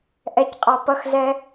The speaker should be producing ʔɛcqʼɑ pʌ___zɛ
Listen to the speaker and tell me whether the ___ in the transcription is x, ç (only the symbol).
x